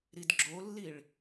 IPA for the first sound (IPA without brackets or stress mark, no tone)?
ɾ